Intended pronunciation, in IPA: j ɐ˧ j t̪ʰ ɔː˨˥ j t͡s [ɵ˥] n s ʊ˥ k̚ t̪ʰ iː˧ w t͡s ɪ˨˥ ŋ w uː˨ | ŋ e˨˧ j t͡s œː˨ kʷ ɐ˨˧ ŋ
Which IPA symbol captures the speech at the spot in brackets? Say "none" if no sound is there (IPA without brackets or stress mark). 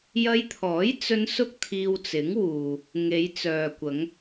ɵ˧